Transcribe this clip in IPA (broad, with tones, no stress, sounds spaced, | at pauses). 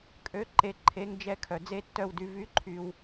kʼ ø˨˥ ǃ e˨ ǃʰ e˨˥ ŋ d͡ʒ ɛ˦˥ kʰ œ˨ d͡z e˦˥ tː œ˦˨ w d y˨˥ v y˨˥ ǃʰ y˨ w